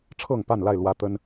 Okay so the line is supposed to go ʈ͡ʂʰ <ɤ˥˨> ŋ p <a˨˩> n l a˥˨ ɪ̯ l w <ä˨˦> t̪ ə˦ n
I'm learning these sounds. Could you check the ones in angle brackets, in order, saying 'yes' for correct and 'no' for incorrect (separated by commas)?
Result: yes, no, no